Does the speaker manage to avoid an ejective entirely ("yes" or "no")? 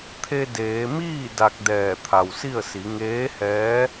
yes